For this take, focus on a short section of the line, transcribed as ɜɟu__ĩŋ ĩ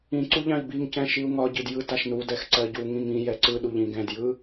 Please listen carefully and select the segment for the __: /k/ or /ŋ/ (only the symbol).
ŋ